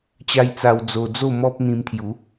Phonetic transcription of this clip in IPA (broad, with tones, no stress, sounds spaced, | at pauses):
t͡ɕ a˧ j t͡s a˧ w d͡z o˧ d͡z o˥˧ m ɔ˦ p̚ n̪ ĩ˧ m t̪ʰ j u˨˦